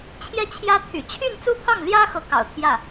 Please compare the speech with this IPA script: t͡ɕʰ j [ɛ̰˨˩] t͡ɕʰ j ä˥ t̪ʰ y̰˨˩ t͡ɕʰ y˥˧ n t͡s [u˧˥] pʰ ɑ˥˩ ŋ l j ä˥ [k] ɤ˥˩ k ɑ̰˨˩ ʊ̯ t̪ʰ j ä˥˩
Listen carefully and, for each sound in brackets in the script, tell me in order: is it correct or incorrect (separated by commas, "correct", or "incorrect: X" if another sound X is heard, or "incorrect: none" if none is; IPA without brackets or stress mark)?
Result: incorrect: ɛ˥˩, incorrect: u˥˧, incorrect: x